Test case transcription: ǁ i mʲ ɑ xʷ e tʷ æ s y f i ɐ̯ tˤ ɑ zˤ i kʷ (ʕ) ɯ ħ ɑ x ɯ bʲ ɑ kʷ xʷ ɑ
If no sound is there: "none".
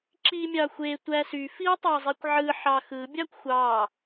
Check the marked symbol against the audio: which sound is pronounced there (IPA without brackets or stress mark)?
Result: ʕ